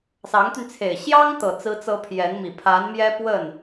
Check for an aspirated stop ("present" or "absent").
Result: present